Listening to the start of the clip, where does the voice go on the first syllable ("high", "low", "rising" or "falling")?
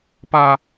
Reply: high